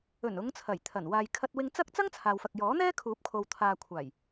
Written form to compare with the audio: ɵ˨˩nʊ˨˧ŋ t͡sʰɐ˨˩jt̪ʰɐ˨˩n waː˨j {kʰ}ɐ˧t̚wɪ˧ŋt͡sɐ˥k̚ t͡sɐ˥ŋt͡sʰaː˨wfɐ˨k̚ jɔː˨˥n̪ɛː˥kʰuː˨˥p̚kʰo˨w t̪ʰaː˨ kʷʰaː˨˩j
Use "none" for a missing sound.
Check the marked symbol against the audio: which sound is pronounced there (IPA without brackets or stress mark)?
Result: kʰ